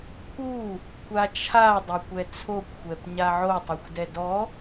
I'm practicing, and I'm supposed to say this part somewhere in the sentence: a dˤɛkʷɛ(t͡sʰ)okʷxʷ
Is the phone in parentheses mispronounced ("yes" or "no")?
no